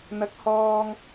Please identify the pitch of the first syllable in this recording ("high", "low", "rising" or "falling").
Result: rising